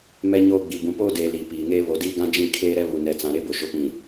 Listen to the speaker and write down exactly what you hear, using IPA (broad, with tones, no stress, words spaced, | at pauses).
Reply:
mɛ˦ɲoː˦ɡ͡bi˨ bũ˨poː˦deː˨ liː˨piː˨ŋeː˦ βo˨diː˦ɡã˦ d͡ʒĩ˦˨kʰeː˦ ɾɛ˦βu˨nɛ˨t͡sã˨ ɾe˦bʊ˨ʃʊ˨pĩ˨